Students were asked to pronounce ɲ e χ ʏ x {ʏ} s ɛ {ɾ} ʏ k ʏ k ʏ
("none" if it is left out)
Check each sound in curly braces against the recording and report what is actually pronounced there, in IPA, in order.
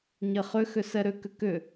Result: ʏ, ɾ

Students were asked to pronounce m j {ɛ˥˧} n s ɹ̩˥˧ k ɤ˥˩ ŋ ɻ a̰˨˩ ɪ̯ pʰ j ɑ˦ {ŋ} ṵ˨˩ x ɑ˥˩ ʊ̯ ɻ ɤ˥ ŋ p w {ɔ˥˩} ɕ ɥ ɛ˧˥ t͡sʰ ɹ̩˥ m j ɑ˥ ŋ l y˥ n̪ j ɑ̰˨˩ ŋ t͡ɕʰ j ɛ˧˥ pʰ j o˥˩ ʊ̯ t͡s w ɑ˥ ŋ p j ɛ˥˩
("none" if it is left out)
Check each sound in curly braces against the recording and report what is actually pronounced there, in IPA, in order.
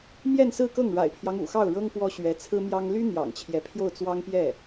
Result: ɛ˥˧, ŋ, ɔ˥

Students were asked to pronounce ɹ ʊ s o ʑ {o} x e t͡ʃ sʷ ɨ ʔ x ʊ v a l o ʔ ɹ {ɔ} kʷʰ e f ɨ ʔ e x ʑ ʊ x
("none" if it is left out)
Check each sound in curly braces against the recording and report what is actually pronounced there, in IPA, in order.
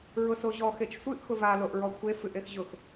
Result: ɔ, ɔ

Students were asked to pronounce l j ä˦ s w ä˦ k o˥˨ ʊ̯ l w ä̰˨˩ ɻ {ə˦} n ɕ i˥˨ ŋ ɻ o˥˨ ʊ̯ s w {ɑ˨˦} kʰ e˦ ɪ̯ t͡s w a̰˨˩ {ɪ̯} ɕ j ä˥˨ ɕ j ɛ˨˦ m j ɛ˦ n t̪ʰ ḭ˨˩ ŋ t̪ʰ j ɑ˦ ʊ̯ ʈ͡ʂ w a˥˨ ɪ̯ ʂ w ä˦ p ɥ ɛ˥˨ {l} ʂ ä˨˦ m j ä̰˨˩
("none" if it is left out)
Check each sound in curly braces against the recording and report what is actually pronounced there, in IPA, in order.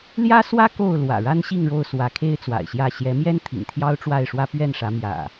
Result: a˦, ä˨˦, ɪ̯, n

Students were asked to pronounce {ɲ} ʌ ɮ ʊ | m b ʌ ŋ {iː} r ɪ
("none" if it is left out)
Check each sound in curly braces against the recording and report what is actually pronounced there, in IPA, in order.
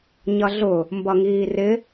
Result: ɲ, iː

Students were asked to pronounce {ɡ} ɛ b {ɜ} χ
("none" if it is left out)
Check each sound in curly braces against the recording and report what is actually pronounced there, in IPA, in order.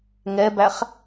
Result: ŋ, æ

